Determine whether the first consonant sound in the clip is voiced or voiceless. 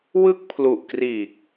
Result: voiced